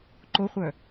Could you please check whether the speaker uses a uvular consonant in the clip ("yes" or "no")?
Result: yes